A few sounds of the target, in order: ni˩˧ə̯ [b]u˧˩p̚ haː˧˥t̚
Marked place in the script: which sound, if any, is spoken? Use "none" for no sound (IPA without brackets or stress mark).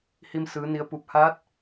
p